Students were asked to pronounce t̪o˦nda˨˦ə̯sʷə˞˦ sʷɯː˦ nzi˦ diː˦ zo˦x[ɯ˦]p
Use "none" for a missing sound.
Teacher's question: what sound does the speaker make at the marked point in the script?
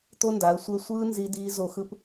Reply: ɯ˦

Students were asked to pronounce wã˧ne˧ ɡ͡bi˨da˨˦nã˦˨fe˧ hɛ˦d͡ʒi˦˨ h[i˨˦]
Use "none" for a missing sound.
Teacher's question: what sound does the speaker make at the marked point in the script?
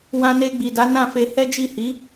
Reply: i˨˦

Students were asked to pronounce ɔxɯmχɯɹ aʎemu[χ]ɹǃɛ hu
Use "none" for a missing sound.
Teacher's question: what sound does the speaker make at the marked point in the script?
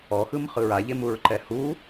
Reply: none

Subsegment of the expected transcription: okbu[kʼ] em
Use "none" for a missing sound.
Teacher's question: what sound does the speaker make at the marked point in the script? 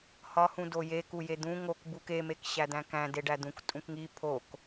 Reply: k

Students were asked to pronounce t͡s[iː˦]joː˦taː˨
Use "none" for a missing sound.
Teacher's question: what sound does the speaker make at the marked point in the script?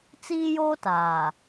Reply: iː˦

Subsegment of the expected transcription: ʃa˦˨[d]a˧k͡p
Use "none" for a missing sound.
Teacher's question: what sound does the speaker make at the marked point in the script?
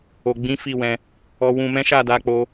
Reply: d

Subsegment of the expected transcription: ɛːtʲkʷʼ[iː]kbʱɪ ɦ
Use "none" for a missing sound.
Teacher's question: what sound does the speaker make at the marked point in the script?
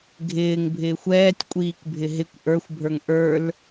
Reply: iː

